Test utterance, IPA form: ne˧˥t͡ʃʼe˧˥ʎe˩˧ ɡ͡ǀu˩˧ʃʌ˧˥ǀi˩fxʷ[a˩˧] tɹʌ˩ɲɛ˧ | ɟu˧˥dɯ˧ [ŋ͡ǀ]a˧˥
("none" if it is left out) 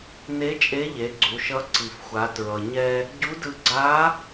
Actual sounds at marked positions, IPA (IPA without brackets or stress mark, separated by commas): a˩˧, ɡ͡ǀ